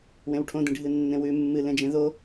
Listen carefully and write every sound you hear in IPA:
w ẽ w ʈʰ õ d ĩ ɖʱ ɨ nː ẽ w ʉ mː ɨ l ẽ d͡ʒ ẽ ð o

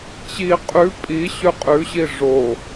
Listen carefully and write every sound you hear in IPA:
t͡ɕ i qʼ ʉ pʼ i ɕ ʉ qʼ ʉ ɕ i ʐ o

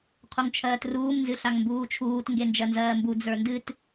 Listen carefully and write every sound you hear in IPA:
qʰ u ŋ t͡ʃʰ ɜː t r uː m n z ɨ ɬ a ŋ m b uː t͡ʃʰ uː t ŋ ɡ e n d͡ʒ ɜ n z ɜː m b u d͡z ə˞ n d ɨ t

